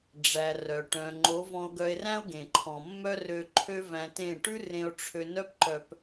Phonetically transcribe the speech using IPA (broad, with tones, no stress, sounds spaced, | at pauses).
ɖ͡ʐ æ˨ r œ˨ ʈ œ̃˨ ŋ͡ǃ o˨˦ v ɔ̃˧ o̯ ɡ œ˧ e̯ r æ̃˦ o̯ ɡ ẽ˨ ǃʰ ɔ̃˨ mː œ˦ r ø˧ ǃʰ ø˦ v æ̃˧ t ẽ˦˨ ʈ ʉ˦ r ẽ˧ o̯ ʈ͡ʂʰ ø˧ n œ˦ p ǃ œ˧ p